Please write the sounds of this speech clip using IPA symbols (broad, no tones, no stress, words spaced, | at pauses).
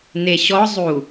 neɕɔ zˤu